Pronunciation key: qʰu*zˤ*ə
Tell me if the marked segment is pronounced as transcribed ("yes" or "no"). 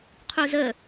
no